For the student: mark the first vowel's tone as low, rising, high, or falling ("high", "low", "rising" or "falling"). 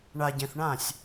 low